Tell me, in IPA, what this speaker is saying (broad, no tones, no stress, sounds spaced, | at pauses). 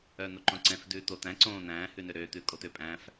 œː n̪ o ǃ õ ǀ ɛ̃ f d ʉː t̪ o t̪ æ̃ ǀ õː n̪ æ̃ː h ʉ n ø ɾ øː t̪ ʉː kʼ o t̪ ø pʼ æ̃ f